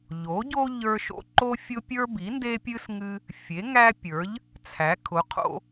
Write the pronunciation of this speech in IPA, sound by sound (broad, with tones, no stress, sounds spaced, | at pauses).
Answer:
ʎ o˩˥ ɟ o˦ ʎ ə˞˦ ʃ o̰˦ ǃ o˦ fʲ ʊ˦ pʲ ə˞˦ b i˩˥ n d e˦ pʲ ɨ˦ s ŋ ɨ˦ | fʲ e˩˥ ŋ æ˦ pʲ ə˞˩˥ ʎ | t͡sʰ æ˩˥ kʰ ʊ˩˥ qʰ o̰˦